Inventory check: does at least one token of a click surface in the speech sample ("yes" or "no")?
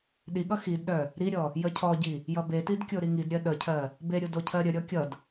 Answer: no